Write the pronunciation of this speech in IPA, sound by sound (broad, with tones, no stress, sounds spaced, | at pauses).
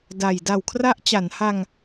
d a˨˩ j d a˨˩ w kʰ r a˦˥ ʔ t͡ɕ a˩˦ n h a˧ ŋ